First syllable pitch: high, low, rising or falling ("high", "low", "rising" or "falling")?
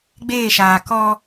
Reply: falling